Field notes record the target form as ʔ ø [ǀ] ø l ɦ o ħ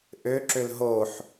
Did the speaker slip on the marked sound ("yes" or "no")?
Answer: yes